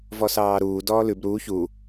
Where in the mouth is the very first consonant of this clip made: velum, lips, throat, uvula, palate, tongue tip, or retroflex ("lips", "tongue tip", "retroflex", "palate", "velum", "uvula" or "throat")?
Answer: lips